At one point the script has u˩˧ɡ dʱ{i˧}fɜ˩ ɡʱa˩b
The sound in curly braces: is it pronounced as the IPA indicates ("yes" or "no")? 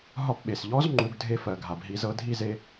no